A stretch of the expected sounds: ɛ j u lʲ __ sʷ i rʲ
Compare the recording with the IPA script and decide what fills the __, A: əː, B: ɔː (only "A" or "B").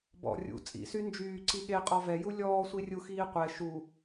B